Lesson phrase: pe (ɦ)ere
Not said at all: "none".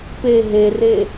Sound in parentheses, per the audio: ɦ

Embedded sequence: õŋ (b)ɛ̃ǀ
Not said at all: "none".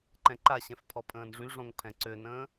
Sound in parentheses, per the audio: pʰ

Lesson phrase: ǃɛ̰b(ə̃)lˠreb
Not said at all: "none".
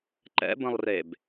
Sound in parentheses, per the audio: ə̃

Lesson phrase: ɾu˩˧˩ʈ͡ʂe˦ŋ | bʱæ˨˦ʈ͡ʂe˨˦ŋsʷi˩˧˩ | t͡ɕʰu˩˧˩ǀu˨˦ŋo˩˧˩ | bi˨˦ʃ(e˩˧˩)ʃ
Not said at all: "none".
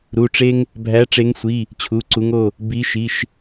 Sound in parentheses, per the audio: i˩˧˩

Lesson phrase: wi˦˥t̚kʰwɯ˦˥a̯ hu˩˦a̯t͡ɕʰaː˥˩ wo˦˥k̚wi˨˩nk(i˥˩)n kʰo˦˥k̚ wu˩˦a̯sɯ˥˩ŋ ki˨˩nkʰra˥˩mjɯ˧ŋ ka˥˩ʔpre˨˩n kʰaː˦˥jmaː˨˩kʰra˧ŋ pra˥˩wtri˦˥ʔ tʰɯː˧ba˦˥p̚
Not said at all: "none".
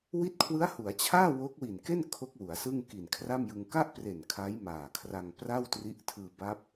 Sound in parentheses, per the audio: e˥˩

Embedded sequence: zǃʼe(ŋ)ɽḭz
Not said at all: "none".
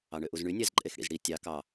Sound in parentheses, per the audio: x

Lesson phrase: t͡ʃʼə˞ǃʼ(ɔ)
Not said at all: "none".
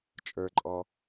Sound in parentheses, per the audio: ɔ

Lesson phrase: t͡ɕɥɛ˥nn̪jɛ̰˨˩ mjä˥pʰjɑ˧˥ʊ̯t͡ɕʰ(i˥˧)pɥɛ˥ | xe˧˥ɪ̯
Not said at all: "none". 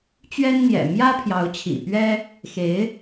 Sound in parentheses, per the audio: ḭ˨˩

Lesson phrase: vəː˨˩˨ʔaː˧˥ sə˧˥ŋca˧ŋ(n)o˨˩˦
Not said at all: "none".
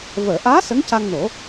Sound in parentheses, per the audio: n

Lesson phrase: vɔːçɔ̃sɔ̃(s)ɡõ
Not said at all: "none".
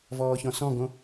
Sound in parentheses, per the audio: none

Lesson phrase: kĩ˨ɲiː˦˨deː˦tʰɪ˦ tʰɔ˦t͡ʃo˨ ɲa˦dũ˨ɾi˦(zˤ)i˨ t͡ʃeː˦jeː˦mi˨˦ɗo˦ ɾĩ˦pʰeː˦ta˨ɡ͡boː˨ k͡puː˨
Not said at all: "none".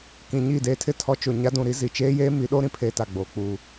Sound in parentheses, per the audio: z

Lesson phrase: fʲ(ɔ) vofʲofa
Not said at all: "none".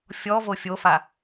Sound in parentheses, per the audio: ɔ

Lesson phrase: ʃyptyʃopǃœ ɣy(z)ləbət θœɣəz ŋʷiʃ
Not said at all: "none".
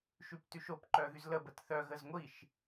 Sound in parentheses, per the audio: z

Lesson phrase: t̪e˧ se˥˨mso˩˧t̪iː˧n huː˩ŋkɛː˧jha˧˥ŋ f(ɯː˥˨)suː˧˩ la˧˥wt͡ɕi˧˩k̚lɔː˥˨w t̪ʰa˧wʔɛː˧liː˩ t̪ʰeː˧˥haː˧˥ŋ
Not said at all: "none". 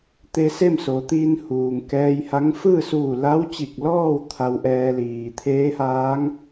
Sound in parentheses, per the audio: ɯː˥˨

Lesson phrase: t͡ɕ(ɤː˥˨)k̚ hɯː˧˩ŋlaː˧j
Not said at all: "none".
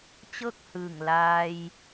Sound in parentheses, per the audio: ɤː˥˨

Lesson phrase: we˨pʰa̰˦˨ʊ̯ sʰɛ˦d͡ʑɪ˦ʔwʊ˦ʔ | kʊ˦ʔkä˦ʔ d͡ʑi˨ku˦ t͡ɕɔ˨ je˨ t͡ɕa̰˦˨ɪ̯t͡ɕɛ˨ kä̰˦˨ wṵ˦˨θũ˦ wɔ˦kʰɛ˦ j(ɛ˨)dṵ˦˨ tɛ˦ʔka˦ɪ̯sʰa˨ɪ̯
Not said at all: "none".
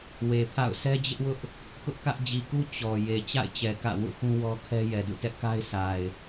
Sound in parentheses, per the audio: ɛ˨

